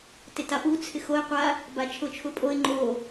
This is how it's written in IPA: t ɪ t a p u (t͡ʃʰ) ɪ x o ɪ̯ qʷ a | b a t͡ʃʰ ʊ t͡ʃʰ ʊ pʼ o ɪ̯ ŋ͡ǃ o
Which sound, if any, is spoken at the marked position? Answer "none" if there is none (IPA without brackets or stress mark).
t͡sʰ